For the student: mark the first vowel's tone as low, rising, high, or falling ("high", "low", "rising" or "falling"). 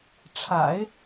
low